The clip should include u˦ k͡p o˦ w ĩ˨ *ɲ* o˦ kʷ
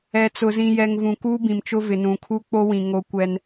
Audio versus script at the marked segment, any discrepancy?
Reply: yes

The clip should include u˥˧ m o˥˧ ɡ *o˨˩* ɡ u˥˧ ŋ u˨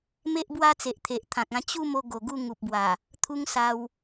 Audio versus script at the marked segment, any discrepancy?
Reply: no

